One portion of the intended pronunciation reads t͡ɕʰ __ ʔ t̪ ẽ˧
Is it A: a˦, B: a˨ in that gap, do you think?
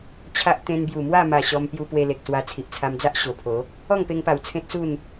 A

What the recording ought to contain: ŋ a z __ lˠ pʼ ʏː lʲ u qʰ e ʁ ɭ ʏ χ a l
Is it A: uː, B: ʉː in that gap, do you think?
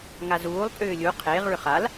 A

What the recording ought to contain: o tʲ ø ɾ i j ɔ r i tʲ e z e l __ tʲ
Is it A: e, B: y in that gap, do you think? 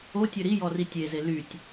B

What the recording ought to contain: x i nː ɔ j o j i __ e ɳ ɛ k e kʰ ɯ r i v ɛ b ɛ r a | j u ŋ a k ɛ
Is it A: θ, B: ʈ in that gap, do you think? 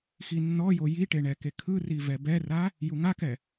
B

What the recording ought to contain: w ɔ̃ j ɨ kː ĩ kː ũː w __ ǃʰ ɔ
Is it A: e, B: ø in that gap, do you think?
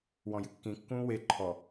A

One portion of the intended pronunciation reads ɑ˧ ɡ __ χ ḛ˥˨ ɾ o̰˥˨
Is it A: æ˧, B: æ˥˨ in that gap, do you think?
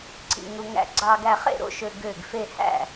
A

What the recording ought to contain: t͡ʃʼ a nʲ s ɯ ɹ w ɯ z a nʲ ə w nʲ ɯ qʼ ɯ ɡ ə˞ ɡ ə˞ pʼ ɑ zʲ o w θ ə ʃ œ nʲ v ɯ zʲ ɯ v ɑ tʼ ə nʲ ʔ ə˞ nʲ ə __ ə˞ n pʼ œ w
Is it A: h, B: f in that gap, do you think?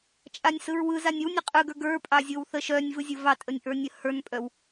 A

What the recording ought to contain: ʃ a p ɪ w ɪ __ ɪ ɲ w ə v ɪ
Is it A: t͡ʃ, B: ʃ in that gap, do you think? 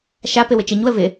A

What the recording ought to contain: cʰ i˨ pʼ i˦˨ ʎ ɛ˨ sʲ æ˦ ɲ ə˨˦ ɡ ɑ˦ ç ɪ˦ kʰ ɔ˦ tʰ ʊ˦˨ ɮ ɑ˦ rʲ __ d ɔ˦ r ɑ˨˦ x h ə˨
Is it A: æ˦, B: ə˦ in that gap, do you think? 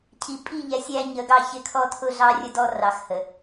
B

